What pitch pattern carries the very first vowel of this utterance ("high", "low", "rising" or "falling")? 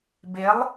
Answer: rising